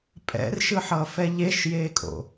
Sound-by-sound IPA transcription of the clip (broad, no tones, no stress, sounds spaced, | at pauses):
pʼ ɛ̰ r ʃ ɯ ħ ʌː f ɛ ʎ e ʃ j eː kʼ o̰